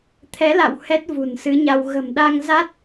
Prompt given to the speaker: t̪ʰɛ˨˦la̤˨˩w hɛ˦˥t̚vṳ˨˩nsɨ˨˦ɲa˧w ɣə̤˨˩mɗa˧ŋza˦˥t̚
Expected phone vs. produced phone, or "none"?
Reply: a̤˨˩ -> a̰˧˨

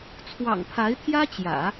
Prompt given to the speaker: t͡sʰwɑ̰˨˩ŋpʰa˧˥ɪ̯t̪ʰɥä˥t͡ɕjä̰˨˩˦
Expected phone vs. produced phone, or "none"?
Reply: ɥ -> j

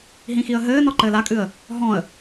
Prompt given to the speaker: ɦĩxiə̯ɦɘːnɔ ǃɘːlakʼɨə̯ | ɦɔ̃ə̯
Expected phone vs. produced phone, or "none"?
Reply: none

